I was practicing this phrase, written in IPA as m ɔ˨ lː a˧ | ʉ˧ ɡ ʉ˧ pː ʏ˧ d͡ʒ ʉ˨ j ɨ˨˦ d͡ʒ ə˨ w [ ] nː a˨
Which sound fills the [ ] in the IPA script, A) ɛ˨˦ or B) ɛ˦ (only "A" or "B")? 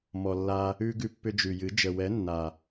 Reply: A